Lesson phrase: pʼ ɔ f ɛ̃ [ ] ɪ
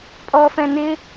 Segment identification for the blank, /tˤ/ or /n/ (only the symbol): n